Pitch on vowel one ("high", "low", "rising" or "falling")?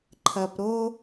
low